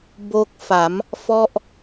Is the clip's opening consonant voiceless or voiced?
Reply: voiced